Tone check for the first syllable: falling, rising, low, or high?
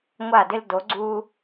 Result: falling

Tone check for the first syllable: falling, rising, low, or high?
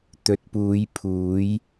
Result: rising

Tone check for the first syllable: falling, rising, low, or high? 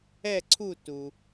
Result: falling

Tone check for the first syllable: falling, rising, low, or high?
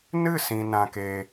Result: falling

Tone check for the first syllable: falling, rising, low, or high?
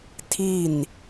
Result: falling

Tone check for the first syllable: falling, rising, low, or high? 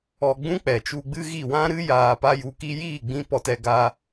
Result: low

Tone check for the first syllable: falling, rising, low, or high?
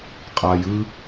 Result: low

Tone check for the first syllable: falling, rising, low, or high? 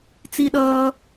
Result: high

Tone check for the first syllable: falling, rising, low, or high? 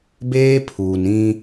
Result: high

